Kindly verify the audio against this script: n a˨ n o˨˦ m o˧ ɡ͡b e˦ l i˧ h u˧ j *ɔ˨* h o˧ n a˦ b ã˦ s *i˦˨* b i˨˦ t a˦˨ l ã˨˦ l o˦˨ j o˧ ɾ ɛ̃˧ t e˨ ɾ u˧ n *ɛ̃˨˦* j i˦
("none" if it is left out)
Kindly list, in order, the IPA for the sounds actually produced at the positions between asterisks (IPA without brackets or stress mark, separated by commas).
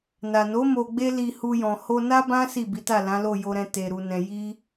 ɔ̃˨, i˦˨, ɛ̃˧